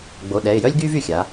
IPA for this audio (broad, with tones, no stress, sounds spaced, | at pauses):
ɡ͡b o˩˧˩ ɗ ɛ˩˧˩ ɪ̯ j œ˥ lʲ ɡ yː˥ v y˩˧˩ xʲ a˩˧